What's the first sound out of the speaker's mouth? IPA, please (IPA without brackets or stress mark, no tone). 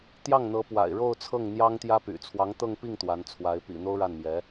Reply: t̪